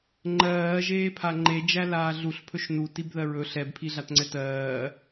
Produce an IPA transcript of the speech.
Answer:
ŋ͡ǃ ɜː ʒ eː pʰ a ŋ͡ǃ e d͡ʒ æ l aː ɮ u ɬ pʰ ɵ ʃ n u t i b ð ɜ ɹ ɵ ɬ ɛ b pʰ i ɮ a t ŋ͡ǀ ɛ t ɜː

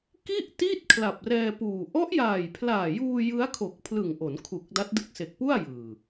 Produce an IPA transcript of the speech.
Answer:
k i˥˩ ʔ t i˥˩ t̚ kʰ l a˨˩ p̚ r ɛː˧ p uː˨˩ ʔ ɔ˦˥ ʔ j aː˨˩ j pʰ l aː˨˩ j uː˧ j ɯ˦˥ a̯ kʰ o˨˩ k̚ pʰ l ɯ˨˩ ŋ ʔ o˩˦ n kʰ u˨˩ k̚ d a˦˥ t̚ d ɯ˦˥ k̚ s e˨˩ k̚ p u˥˩ a̯ j ɯː˨˩

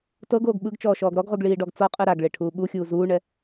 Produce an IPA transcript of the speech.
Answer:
t ɤ ɡ oː ɡ ɓ ɯ ɡ t͡ʃ ɔː ʃ ɔː ɡ ɾ ɔ ɡ ʁ u ɡ ɭ iː ɖ ɔ ɡ t͡s ɔ qʼ ɯ ɾ a ɡ ɭ e ʈʰ uː ɓ u xʲ uː z uː ɳ ɛ

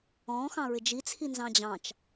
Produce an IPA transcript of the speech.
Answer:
ɔ̃ x ɑ̃ ɹ ɪ d͡ʒ i t͡sʰ i n z ɑ̃ d͡ʑ ɑ̃ t͡ʃ

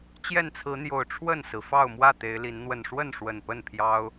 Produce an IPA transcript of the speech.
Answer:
t͡ɕ j ɛ˥˨ n t͡sʰ ɹ̩˨˦ n̪ j o˨˩ ʊ̯ ʈ͡ʂʰ w ə˥˨ n s ɹ̩˩ f ɑ˥˨ ʊ̯ m w ä˥˨ t̪ e˨˦ ɪ̯ l i˨˦ n n̪ w ə˨˩ n ʂ w ə˥˨ n ʂ w ə˨˩ n p ə˥˨ n pʰ j ɑ˦ ʊ̯

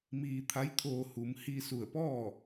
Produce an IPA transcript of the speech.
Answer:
m iː˧ t̪ʰ a˧˥ j t̪ʰ oː˧ h u˩˧ m h i˧ s u˧˩ ə̯ p ɔː˥˨

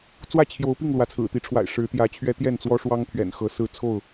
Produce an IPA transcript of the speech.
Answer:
t͡s w ä˥˨ t͡ɕʰ j o˨˦ ʊ̯ p i˥˨ ŋ l w ä˨˦ t͡sʰ ɹ̩˨˩ t̪ i˨˦ ʈ͡ʂʰ w a̰˨˩ ɪ̯ ʂ ɻ̩˨˦ t̪ j ä˨˦ t͡ɕʰ ɥ ɛ˦ t̪ j ɛ˥˨ n t͡s w ɔ˦ ʂ w ɑ˦ ŋ t̪ʰ ɥ ɛ̰˨˩ n x ɤ˨˦ s ɹ̩˥˨ t͡sʰ o˥˨ ʊ̯

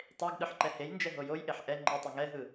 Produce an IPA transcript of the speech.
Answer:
tˤ e ɡ ɗ ɯ ħ ǃ ɛ h e j n d͡ʒ ɛ ɦ o j o j ʔ e ħ ʔ ɛ ŋ͡ǃ e tˤ ɛ ŋ ɛ ɦ ɯ

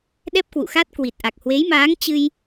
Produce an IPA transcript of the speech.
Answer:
ɗ ɛ˦˥ p̚ k w ṵ˧˨ x a˦˥ t̚ k w i˨˩ t̚ ʔ a˨˩ k̚ h w e˨˦ j m aː˨˦ ŋ t͡ɕ ɨ˧ j

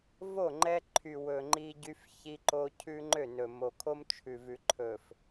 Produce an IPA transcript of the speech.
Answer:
v o˦˨ ŋ͡ǃ ɛ˦ ǃʰ y˨ w ɵ˨ ŋ͡ǃ i˦ ɟ y˦ f ç i˦ ǃ o˦ cʰ ʉ˦ ŋ͡ǃ ø˦˨ n ɵ˨ m o˨ kʰ o˦ m t͡ʃʰ ʉ˨ v ʉ˨ ǃʰ ɵ˨ f

